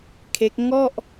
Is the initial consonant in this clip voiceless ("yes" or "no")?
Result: yes